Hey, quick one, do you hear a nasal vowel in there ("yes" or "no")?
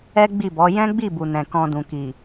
yes